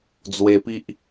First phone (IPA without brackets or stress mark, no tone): d͡z